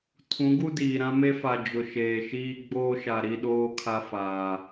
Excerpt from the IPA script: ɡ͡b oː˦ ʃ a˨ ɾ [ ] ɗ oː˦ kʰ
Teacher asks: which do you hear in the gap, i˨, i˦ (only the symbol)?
i˦